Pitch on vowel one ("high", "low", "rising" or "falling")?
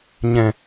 low